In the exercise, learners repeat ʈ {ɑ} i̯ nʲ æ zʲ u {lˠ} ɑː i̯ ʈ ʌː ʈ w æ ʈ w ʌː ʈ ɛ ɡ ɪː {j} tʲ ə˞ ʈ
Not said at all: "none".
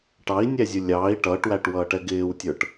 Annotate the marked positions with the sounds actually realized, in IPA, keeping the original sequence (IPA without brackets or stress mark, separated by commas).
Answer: ɑ, lʲ, w